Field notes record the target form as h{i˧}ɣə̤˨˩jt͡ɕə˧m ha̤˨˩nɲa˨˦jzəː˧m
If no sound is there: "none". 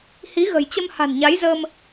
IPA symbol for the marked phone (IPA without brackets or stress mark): i˨˦